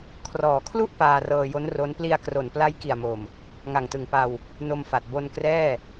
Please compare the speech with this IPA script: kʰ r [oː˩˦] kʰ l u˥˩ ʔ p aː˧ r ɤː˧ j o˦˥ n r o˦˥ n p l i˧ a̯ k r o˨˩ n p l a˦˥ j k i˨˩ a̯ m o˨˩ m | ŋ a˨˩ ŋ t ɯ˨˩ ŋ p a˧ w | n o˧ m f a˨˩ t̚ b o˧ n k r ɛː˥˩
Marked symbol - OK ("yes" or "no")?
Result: no